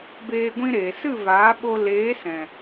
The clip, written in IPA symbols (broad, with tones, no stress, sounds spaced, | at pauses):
b eː˧ ɡʷ ĩ˧ ɾ eː˨ s ɨ˦˨ v aː˨˦ ɓ o˧ l eː˨˦ s ɛ̃˨